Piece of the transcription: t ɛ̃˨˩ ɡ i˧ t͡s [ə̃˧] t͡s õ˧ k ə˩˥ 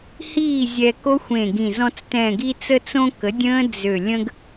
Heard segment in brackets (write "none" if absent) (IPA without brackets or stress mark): ə˧